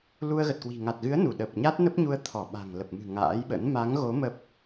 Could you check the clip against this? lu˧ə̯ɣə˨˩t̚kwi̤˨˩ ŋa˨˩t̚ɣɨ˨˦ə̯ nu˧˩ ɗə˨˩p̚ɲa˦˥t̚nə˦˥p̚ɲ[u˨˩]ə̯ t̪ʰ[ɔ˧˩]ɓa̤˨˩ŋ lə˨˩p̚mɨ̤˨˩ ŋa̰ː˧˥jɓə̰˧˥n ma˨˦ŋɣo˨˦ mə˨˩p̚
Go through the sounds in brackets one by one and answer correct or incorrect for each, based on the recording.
incorrect, correct

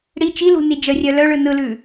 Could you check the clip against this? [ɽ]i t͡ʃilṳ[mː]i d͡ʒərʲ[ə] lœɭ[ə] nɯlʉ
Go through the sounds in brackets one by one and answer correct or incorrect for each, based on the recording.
correct, incorrect, incorrect, incorrect

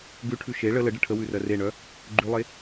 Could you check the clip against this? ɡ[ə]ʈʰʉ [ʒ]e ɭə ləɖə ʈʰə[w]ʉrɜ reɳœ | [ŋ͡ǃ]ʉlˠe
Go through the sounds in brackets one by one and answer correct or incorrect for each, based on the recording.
incorrect, incorrect, correct, incorrect

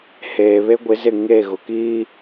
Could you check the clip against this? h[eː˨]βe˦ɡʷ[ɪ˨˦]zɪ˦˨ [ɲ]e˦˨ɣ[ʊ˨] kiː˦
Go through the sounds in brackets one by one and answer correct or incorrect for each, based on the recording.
correct, correct, incorrect, correct

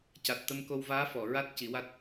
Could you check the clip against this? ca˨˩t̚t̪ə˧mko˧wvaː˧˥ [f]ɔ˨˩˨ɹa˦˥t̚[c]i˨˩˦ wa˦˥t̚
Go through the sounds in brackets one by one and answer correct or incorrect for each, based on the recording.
correct, correct

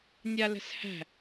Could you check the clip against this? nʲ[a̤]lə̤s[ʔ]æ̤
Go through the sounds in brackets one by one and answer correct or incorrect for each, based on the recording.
incorrect, incorrect

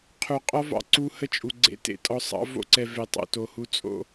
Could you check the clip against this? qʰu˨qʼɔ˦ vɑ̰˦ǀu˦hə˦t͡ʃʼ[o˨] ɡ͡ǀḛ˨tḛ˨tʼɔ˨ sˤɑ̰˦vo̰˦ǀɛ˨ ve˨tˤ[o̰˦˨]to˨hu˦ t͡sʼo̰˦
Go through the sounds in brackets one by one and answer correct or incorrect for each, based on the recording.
incorrect, correct

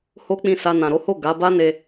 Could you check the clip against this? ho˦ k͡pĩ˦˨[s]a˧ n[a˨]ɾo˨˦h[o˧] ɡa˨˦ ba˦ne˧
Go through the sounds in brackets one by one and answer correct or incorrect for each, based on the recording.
correct, incorrect, incorrect

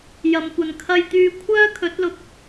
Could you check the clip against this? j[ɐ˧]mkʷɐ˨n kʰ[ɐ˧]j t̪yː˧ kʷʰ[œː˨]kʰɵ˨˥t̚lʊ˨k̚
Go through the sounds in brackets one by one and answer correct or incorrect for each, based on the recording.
incorrect, correct, incorrect

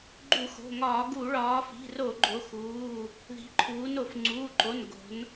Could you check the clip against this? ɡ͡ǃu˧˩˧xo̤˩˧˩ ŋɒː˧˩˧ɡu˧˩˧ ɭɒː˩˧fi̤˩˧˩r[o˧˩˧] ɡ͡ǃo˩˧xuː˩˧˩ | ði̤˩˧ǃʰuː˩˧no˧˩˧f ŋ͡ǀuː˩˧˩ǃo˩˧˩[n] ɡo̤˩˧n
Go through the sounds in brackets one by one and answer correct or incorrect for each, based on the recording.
correct, correct

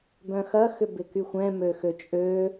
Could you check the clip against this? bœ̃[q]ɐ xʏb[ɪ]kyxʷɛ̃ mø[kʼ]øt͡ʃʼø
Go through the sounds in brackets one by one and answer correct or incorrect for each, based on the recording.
incorrect, correct, incorrect

